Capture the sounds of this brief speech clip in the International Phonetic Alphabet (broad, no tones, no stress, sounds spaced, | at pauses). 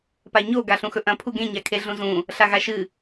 p a ɲ o ɡ a ɬ ũ x ɵ ʔ ɐ̃ pʰ u ɡ ẽ ɲ a kʰ e ɮ ũ z ũ | ɬ a ɣ a ʃ ɨ